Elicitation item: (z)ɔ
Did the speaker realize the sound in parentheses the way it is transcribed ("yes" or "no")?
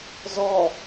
yes